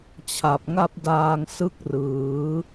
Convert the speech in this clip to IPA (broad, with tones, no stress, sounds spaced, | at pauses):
t͡ɕʰ a˨˩ p̚ ŋ a˥˩ p̚ d aː˧ ŋ s ɯ˥˩ k̚ r ɯː˩˦